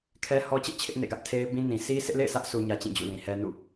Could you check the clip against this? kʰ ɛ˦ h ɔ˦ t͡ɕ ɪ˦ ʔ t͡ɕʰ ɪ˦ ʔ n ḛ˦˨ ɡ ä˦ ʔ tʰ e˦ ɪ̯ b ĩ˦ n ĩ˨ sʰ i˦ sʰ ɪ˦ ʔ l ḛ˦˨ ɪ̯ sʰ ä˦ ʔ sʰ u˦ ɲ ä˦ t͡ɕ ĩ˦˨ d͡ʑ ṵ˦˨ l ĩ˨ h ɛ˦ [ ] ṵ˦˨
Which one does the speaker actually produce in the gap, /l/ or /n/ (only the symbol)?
n